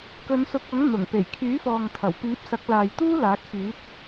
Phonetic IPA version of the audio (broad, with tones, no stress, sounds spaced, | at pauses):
k ɵ˨˧ n s ʊ˨˥ k̚ ɐ˨˥ ŋ n̪ ʊ˨˩ ŋ p e˨˩ j kʰ yː˨˥ f ɔː˨ ŋ t̪ʰ ɐ˨˩ w p iː˨˥ p̚ s ɐ˨˥ k̚ l aː˨ j t̪ uː˥ l aː˨˥ k̚ f yː˨˥ t̚